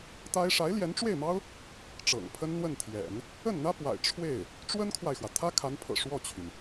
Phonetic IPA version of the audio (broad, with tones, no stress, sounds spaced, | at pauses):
t̪ a˥ ɪ̯ ʂ a˧˥ ɪ̯ l j ɛ˧˥ n ʈ͡ʂ w e˥˩ ɪ̯ m ɑ˥ ʊ̯ | ʈ͡ʂ ɤ̰˨˩ ŋ pʰ ə˥ n n̪ w ə˥˩ n t̪ʰ j ɛ̰˨˩˦ n | ə˥˩ n n̪ ä˥ p w a̰˨˩ ɪ̯ ʈ͡ʂʰ w e˥˩ ɪ̯ | ʈ͡ʂ w ə˥ n kʰ w a˨ ɪ̯ x w ä˩ t̪ʰ ä˥ kʰ a˧˥ n pʰ ɤ̰˨˩ ʂ w ɔ˥˩ t͡ɕʰ y˩ n